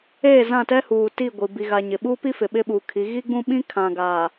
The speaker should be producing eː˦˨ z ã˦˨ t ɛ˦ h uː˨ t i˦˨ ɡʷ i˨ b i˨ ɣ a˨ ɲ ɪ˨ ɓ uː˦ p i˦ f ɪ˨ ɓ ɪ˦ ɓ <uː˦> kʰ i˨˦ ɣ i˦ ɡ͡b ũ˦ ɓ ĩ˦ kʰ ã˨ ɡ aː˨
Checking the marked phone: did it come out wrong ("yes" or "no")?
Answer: yes